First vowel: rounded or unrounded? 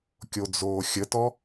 rounded